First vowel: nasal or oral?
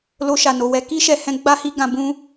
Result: oral